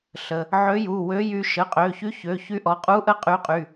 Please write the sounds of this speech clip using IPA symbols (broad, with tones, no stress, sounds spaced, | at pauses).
ɬ ə˩˧˩ | ʕ ø˧˥ j u˩˧˩ w ø˧˥ j y˧˥ ʃ ə˩˧˩ qʼ ø˩˧˩ ç y˧˥ ç ø˩˧˩ ç y˧˥ ʔ ɔ˩˧˩ qʼ u˧˥ ʔ ə˧˥ qʼ y˧˥ qʼ y˩˧˩